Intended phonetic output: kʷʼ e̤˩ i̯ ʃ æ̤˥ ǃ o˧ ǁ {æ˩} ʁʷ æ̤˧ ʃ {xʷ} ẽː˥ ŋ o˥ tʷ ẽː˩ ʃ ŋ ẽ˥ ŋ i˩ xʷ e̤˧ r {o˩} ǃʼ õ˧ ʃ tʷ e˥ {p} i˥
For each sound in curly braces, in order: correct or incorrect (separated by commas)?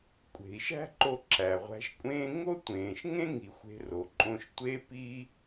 correct, incorrect, correct, correct